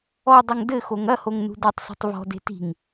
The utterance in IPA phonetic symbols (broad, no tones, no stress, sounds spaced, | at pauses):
ɔ dˤ ɐ ŋ d ɘ x o ŋ ɐ h o ŋ n ṳ d o tˤ s ṳ tˤ v ɔ̤ d e̤ t i̤ ŋ